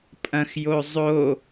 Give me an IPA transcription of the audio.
pʼ ɐ̃ x j o zˤ o

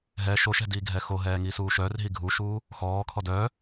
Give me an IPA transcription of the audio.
ɦ ɛ ʃ o ʃ ɛ̤ d iː ɡʱ ɛ x o ɦ ɛː ŋ i s uː ʃ œː r ɦ i ɡʱ u ʃ uː | x ɔː kʰ ɔ d œː

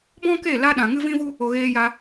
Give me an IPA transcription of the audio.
b ɔ̃˦ k e˦˨ l a˧ ɗ ã˨ ŋ ɨ˦ v ĩ˦ v u˦ | o˧ ɣ eː˧ j a˧

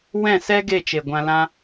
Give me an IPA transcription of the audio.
w ɛ̃˦˨ s ɛ˦ ɡ e˦˨ t͡ʃ e˨ ɡʷ ã˧ l ã˦

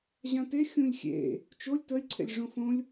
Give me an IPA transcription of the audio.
ʑ ã t e xʲ ũ lʲ xʲ ḛ | t͡ʃ o lʲ t ə lʲ ǀʰ ḛ lʲ ʐ õ f õ lʲ

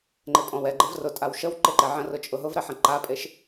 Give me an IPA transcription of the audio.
ŋ͡ǃ e pʼ ɔ̃ w ɛ ɡ͡ǃ ɛ v r ʊ tʼ a w ʃ ə w ǃ e ǃ ɛ ʕ ə̃ r ʊ t͡ʃʼ ʊ ɦ ʊ v ɾ ɛ ħ ə̃ ǃ a pʼ e ʃ

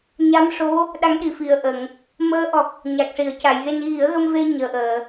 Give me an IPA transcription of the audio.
ɲ a˧˥ m ʂ o˧˥ | ɗ a˧˥ ŋ ɗ i˨˩ f i˨˩ ə̯ ʔ ə˨˩˨ ŋ | m əː˧˥ ʔ ɔ˨˩ k̚ | ɲ a˨˩ k̚ ʂ i˨˩˨ ə̯ c a˨˩˨ j ɣ e˧ n ɣ i˨˩˦ ə̯ ɣ ə˧ m v e˧ ɲ əː˨˩ ʔ əː˨˩˨

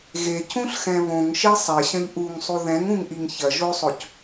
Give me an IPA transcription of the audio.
ɣ e cʰ ũ ɬ x ɛ̃ β õ ŋ ʃ e sˤ ɛ ɕ ɐ̃ ʎ ʔ u ŋ sˤ u ð ɛ̃ ŋ ũ ŋ ʔ i ŋ ç ɐ ʒ o sˤ o c

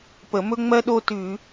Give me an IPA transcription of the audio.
p ə˧˩˧ m ɵ˥ ŋ͡m ɜ˥ ɗ o˥ t ʉ˧˩˧

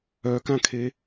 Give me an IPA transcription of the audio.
œ k ã kʰ e

